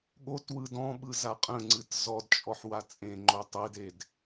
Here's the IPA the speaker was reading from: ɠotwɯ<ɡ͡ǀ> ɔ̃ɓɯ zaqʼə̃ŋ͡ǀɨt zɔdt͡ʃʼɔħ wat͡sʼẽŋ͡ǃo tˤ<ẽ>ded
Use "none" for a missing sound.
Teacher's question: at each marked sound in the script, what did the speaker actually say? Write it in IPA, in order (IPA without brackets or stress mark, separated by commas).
d, e